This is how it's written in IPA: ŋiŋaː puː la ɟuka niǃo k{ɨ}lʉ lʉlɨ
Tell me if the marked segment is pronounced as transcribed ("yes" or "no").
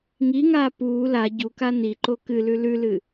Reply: yes